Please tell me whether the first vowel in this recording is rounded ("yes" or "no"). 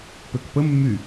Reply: yes